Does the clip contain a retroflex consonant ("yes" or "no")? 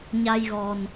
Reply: no